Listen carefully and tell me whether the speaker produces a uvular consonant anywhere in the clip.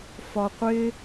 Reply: yes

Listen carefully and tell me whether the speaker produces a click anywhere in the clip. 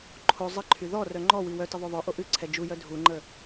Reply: yes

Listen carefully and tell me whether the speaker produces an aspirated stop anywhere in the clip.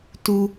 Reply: no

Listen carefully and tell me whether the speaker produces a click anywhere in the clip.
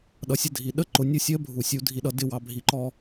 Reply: yes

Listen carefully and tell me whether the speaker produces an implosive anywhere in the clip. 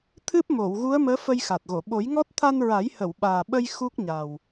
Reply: yes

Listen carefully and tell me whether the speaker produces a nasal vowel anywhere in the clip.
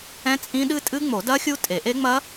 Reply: yes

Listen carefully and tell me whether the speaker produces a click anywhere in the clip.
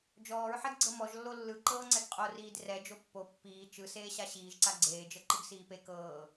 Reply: yes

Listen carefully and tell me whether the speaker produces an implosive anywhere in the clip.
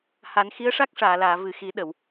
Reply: yes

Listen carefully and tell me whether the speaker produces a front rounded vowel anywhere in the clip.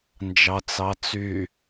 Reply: yes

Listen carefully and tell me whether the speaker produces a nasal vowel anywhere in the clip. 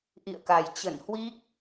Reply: no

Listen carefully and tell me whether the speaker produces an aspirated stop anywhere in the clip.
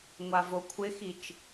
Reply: yes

